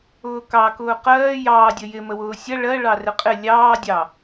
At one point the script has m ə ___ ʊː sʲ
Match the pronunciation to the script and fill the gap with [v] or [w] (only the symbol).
w